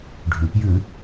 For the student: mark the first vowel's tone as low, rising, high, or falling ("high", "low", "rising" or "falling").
low